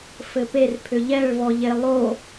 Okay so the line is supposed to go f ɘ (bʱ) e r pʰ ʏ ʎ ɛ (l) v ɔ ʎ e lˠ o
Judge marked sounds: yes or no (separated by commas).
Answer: no, no